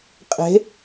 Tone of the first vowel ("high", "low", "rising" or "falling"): rising